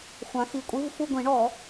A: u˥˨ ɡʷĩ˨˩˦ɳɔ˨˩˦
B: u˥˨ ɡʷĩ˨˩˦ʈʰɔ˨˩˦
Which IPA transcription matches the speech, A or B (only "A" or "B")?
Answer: A